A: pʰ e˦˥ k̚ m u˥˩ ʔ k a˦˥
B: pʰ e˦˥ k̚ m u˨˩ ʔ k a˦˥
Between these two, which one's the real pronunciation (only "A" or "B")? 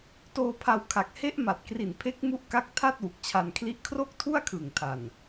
A